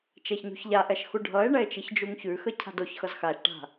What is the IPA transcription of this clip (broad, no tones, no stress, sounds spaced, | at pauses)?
t͡ʃ ɛ ç ɲ ṳ ç ʎ a ʔ ɛ ʃ x u ɖʱ ʌ e̯ ɳ ɛ e̯ t͡ʃ i ç d͡ʒ u ŋ ç ʉ x ə cʰ a̤ d o ç x ʌ z x a ʃ ʈ a̤